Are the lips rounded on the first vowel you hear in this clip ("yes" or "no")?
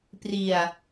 no